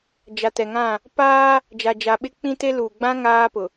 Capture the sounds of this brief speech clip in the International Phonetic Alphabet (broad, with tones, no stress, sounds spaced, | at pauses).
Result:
d͡ʒ a˨ t ɛ˨ ŋ ã˦˨ | p aː˦ | d͡ʒ a˨ d͡ʒ a˨ ɓ ɪ˦ k͡p ĩ˦ t e˦ l uː˨ ɡ͡b ã˦ ŋ aː˦ p ʊ˨